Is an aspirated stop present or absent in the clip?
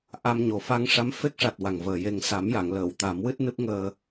absent